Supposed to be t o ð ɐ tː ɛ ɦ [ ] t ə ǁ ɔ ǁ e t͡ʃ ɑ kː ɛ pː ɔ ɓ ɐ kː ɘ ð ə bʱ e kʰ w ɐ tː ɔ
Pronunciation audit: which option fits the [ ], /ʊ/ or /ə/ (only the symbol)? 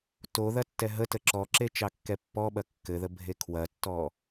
ə